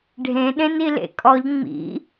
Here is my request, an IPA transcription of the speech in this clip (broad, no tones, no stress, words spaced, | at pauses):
ɖʱẽɗẽn ilḛkʼɔʎ ŋ͡mḭ